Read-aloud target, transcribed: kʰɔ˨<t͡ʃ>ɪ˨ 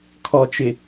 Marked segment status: correct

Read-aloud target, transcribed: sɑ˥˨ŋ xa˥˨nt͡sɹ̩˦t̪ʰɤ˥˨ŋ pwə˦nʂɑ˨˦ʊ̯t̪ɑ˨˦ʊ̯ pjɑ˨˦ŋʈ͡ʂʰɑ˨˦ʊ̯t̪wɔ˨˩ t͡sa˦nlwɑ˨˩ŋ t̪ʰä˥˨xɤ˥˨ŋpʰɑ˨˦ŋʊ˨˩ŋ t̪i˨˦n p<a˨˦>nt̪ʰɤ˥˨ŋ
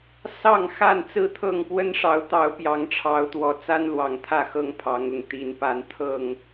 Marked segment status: correct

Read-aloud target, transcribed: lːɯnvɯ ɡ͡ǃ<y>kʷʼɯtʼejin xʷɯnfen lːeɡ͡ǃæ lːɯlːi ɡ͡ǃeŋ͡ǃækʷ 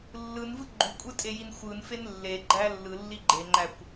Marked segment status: correct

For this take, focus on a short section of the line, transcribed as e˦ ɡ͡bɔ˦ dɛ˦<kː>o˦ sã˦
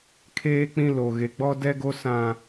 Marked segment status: incorrect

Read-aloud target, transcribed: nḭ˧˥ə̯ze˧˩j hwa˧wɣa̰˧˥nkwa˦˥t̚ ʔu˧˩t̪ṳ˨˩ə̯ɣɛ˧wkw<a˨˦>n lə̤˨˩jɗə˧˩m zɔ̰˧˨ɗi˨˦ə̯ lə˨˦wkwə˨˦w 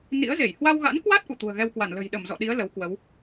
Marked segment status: incorrect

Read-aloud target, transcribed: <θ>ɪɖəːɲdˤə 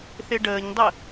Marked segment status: correct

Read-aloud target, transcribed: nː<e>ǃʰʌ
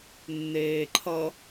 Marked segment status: incorrect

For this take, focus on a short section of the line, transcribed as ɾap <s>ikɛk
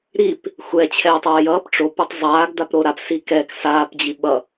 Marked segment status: correct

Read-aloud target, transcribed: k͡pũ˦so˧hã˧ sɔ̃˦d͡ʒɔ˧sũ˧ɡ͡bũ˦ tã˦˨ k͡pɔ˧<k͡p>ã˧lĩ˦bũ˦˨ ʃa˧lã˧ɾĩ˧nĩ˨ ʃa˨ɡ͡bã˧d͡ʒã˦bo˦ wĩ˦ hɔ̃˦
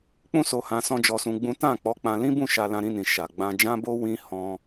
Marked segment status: correct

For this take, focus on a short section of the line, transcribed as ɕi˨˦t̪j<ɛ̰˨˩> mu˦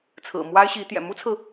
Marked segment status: correct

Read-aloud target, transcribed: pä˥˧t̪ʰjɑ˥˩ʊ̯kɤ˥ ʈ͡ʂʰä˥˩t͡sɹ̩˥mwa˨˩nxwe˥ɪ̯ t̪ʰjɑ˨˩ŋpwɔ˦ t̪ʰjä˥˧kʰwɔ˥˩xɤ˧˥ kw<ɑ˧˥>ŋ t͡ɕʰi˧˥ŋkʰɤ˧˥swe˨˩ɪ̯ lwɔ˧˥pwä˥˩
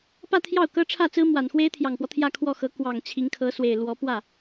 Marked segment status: incorrect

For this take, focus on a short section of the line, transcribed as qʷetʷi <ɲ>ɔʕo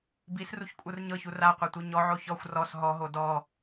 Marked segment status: correct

